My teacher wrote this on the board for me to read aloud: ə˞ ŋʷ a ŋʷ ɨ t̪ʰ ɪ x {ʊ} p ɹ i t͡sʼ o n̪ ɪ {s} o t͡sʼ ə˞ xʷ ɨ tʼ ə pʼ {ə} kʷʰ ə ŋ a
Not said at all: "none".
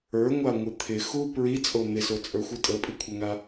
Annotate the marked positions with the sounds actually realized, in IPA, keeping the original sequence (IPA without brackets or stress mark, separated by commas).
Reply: u, s, ɨ